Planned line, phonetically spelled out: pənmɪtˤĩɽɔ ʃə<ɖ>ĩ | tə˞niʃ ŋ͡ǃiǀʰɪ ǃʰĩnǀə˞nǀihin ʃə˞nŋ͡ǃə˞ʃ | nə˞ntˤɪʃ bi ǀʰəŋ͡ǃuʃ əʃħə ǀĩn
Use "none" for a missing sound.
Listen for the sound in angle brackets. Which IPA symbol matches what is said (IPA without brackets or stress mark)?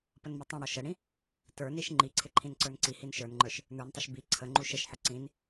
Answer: ɽ